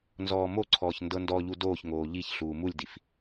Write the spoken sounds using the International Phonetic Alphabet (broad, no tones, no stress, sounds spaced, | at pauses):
n z ɔː m o ǀʰ ɔː ç n d ɤ n d ɔ ʎ u d oː ç ŋ oː ʎ i ç ɬ uː m u lʲ d i f